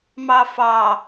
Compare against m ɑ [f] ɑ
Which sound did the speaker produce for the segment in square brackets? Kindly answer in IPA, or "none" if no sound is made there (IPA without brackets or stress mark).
f